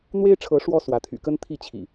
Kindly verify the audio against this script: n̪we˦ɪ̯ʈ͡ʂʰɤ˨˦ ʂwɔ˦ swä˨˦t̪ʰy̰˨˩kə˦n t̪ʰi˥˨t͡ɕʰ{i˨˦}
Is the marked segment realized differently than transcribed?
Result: yes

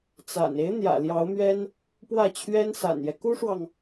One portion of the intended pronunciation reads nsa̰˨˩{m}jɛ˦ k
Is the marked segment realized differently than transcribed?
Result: yes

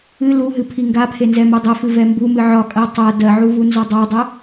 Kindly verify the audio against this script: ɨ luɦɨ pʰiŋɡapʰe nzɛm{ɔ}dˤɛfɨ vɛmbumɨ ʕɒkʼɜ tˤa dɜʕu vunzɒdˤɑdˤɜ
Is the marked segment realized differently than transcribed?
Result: yes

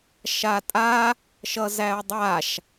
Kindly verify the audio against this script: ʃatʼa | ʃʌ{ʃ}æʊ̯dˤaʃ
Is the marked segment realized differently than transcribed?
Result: yes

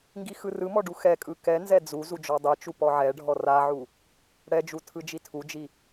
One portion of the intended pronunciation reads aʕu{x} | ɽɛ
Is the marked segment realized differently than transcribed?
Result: yes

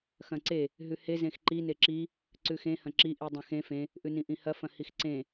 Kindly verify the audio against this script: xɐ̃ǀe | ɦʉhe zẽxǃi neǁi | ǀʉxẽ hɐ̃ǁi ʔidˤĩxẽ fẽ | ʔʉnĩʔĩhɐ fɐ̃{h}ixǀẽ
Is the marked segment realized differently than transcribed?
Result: no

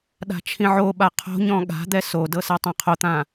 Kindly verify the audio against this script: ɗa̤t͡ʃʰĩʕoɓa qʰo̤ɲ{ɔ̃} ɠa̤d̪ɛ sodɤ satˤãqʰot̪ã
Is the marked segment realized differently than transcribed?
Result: no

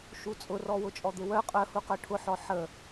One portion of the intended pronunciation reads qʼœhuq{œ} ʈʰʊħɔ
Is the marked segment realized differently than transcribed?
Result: no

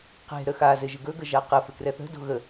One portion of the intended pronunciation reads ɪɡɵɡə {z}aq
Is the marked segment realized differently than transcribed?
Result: yes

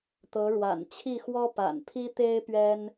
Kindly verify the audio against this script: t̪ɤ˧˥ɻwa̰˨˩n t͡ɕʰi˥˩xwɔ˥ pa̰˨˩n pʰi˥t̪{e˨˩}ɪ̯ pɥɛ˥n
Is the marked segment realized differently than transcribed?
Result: yes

